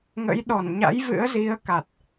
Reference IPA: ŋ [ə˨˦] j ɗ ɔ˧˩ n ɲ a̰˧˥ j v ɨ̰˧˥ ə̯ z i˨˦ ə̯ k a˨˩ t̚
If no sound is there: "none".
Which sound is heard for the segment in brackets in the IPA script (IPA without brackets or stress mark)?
ə̰˧˥